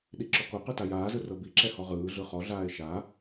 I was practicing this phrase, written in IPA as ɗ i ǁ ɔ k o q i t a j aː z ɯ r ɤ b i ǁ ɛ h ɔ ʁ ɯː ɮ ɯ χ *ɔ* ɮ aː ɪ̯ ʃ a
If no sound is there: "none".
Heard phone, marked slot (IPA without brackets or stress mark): ɔ